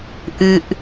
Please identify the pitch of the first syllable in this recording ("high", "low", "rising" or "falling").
high